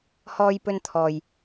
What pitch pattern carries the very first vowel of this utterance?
high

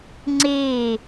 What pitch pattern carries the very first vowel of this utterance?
falling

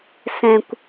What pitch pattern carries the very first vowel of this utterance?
high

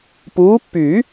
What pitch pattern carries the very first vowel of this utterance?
rising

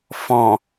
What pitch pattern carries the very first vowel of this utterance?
low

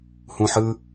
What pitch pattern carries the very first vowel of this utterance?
low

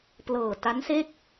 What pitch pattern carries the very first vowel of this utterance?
low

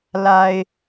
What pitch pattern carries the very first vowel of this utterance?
low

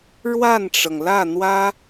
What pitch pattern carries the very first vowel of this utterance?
falling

